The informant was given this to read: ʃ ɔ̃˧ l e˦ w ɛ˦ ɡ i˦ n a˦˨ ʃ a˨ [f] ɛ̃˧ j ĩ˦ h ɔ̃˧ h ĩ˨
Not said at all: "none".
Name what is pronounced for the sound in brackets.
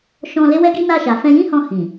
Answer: f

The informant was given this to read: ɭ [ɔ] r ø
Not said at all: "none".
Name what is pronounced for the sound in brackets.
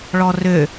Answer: ɔ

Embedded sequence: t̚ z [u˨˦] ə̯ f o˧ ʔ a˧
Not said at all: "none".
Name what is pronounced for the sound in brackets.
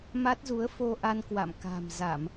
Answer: u˨˦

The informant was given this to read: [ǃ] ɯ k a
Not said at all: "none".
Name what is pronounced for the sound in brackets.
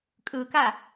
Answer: kʼ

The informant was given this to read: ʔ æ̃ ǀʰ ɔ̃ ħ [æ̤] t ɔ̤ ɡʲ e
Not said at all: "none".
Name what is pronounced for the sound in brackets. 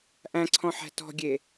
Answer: æ̤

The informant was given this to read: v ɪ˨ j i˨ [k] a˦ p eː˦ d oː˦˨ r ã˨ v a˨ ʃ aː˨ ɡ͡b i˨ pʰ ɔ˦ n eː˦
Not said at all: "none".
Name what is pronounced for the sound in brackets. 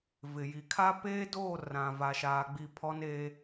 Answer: kʰ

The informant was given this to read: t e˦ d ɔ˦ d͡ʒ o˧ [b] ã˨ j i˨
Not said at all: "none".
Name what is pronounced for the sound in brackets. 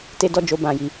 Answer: b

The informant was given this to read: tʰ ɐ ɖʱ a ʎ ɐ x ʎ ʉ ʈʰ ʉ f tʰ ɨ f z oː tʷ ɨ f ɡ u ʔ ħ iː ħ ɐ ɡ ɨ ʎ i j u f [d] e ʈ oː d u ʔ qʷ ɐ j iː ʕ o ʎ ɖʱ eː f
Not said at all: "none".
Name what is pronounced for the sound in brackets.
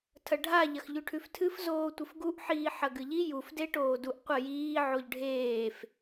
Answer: d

